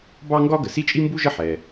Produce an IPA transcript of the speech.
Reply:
b ɑ˥ ŋ ɡ ɒ˥ ɡ ə˩ s i˥ t͡ʃʼ i˥ m b u˥ ʒ ə˥ ħ ɛ˩

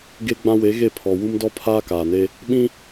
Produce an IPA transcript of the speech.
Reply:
ɡ e˦ ɡ͡b ã˦ w e˨˦ ɣ e˦˨ pʰ ɔ˨ w u˦ m d ɔ˦ pʰ aː˦ k aː˨ n e˦ | ɓ ĩ˦

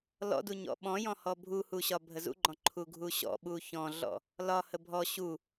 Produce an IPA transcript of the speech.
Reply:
l ɔ̰ d u ɲ ɔ̰ ɓ ɔ̃ j ɔ̃ h ɔ bʱ u h u ɕ ɒ bʱ ə z ṵ ɡ͡ǃ ɔ̃ ǃʰ u ɡʱ u ɕ ɔ̰ ɓ u ç ɔ̃ ɮ ɔ̰ | l ɒ h ə bʱ ɔ ɕ u

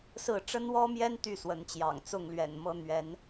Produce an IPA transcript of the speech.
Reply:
s ɹ̩˥˨ ʈ͡ʂ ə˦ n w ɔ˦ m j ɛ˦ n t̪ y˥˨ s w ə˨˦ n t͡ɕ j ɑ̰˨˩ ŋ t͡s ʊ˥˨ ŋ l ɥ ɛ̰˨˩ n m ɤ˦ n̪ ɥ ɛ˨˦ n

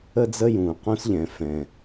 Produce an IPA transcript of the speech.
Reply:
ə˥ d͡z ə˥ j ũː˩ q ũ˥ s ʎ ɛ̃˩ f ɛ̃˩

